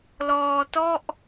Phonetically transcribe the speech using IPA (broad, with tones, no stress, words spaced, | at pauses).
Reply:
lɔː˧tɔ˥˩ʔ